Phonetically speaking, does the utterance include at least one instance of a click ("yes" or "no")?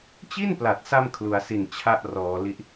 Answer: no